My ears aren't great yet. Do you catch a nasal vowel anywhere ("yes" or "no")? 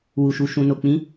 yes